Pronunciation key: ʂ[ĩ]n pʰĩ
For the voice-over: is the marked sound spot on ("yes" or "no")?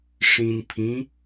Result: yes